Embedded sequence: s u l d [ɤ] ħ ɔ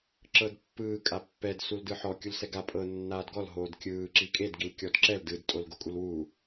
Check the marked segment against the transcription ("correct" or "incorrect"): incorrect